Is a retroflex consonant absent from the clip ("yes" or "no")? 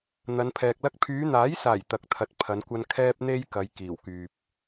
yes